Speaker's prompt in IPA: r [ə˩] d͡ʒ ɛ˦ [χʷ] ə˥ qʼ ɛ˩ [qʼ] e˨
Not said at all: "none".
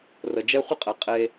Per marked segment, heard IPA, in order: ə˩, χʷ, qʼ

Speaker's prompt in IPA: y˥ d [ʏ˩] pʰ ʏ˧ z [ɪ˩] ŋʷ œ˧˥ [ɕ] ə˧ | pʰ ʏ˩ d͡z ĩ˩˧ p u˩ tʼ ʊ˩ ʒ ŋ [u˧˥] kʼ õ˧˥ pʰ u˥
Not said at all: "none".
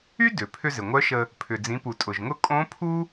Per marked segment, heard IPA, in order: ʏ˩, ɪ˩, ʃ, ʊ˧˥

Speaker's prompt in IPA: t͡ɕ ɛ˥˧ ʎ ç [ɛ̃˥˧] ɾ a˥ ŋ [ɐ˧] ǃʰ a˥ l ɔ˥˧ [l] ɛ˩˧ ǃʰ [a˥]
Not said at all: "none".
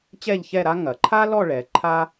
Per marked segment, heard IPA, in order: ɛ˥˧, ɐ˩˧, ɭ, a˥

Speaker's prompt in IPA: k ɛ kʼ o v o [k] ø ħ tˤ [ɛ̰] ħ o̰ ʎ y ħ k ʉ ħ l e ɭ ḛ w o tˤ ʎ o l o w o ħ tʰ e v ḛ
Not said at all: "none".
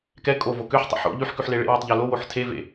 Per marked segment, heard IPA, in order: k, ɛ̰

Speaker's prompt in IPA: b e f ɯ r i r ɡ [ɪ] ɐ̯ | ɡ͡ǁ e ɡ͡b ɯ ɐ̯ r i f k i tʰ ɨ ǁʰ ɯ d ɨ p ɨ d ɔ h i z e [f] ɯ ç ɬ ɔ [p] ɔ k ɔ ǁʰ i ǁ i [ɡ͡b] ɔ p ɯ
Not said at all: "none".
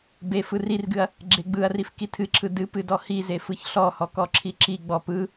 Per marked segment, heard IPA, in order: ɨ, f, h, ɡ͡b

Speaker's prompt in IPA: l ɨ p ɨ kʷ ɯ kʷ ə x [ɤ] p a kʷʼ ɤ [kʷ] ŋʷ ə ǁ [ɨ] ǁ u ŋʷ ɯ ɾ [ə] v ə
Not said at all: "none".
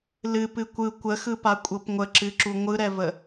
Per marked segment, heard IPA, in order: ɯ, p, ɨ, ɛ

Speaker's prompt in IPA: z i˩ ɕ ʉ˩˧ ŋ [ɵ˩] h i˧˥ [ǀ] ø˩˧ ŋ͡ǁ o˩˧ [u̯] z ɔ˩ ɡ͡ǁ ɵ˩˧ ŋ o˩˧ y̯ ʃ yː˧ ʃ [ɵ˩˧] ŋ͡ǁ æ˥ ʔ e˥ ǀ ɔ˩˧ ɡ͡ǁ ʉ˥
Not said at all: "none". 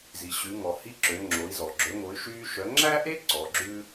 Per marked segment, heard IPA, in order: ɔ˩, ǁ, i̯, œ˩˧

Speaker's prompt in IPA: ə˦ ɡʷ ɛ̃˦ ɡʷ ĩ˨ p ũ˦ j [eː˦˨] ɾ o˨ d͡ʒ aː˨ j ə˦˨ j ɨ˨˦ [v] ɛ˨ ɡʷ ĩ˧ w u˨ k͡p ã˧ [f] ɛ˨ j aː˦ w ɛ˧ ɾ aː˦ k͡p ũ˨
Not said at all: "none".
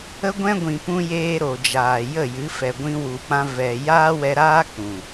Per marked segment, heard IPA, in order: eː˦, f, v

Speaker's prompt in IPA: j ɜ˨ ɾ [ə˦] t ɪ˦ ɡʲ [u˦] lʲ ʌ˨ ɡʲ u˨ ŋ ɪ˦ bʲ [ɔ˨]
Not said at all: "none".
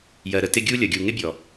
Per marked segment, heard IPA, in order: ə˦, u˦, ɔ˨

